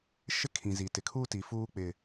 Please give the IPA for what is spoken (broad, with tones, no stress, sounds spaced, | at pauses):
ʃ ɪ˦ kʰ ĩ˨ z i˨ t ɪ˨ kʰ uː˦ t i˨ f uː˦ k͡p ɪ˨